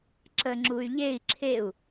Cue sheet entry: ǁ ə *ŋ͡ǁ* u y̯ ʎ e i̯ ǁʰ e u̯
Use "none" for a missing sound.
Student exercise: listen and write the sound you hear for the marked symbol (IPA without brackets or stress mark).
ŋ͡ǁ